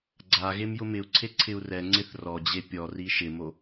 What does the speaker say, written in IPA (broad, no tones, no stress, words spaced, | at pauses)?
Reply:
ɡ͡ǀa ɣemjʊmɪu̯ǀʰe ǀʰɪu̯rɛŋ͡ǀɪθ rɔd͡ʑe pʲɔri ʃɪmo